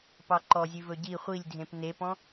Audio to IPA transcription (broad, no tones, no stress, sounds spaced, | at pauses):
p ɑ ǃ ɔ zʲ ʉ v ɵ ɟ i χʷ i lʲ dʱ ẽ p n e p ɔ̃